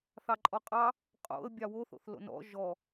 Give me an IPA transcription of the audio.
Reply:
θ ɑ ǃʼ ɔ qʼ ɑ | qʼ o̰ ə̯ bʲ ɑ w o θ o̰ θ l o̰ n ɔ̰ ʒ ɔ

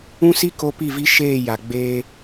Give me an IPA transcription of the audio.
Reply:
ũ˦ s i˦ k o˦ p i˦˨ v i˦ ʃ eː˦˨ j a˨ ɡ͡b eː˦

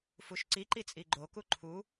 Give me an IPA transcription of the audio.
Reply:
f u ʃ ǀ i ǃ i t͡sʼ i ɡ͡ǃ o k u ǃʰ u

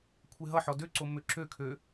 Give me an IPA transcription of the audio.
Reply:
kʷʰ e ɦ ʌ ħ ɔ d ø ǀ o m ø ǁ ø kʰ ø

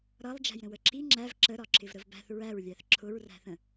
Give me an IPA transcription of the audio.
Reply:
ɾ ʌ lˠ d͡ʒ æ̤ j ɾ ə̃ w ə ǁ i ŋ͡ǁ æ v ǁ ə ɾ ɒ ǁ ɪ v ɾ ə v b æ̤ θ ɹ æ ɹ lʲ æ θ ǁʰ ʊ ɹ r æ̤ θ ə̃

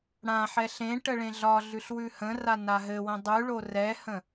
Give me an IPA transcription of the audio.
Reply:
ɽ ã ħ ɛ ɬ ẽ ʈ ə ɭ ẽ ɮ ɒ ɮ ʉ ɬ w ʉ h ə̃ r a n a ɦ ɘ w ə̃ dˤ ʉ ɭ o r ɛ h ə̃

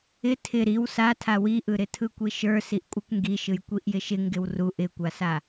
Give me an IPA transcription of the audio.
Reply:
ɪ tʰ ɪ ɾ i w s a tʰ a w i ʔ ɯ ɾ ɪ tʰ ɯ kʷ i ʃ ə˞ s i ʔ kʷʼ ɯ kʷ ŋ ɡ i ʃ ɯ j kʷ i ʔ j ɪ ʃ ɪ ŋ ɡ ɪ w r u ʔ ɪ kʷ a s a

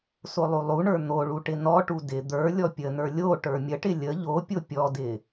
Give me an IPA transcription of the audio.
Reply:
s o lˠ u lˠ u ɳ ə˞ n̪ o ɭ u ʈ ɪ n ɔ ʈ u d ɪ d̪ ə˞ lʲ ɔ pʲ ə n ə˞ lʲ o ʈ ə˞ mʲ ə ʈ ɪ lʲ ə ʎ o pʲ o pʲ ɔ d ɪ

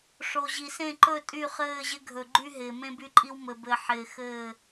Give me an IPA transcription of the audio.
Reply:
ʂ o˨ ʑ i˨ s ẽ˦˨ ǃ ɵ˦˨ tʼ y˦˨ χ ɘː˦˨ ʑ ɪ˦ ɡʱ ɵ˨ ɡ͡ǃ y˦ ɦ ɪː˨ m ẽ˦ b y˦ ǃʼ i˦ w m ɘ˨ b ɘ˨ ħ ɪː˨ x ɘː˦˨

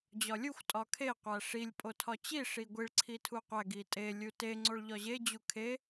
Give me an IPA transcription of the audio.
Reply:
d͡ʑ ɒ lʲ u xʷ tʼ ɒ kʰ e qʷ æ ʂ i lʲ pʼ o tʰ ɒ t͡ɕ i ʂ i ɡʷ i ɭ ǀʰ i tʰ u qʷ æ ɡ i tʼ e lʲ u t e ŋ͡ǀ o ɭ ʎ ɒ ʑ e d͡ʑ u kʰ e

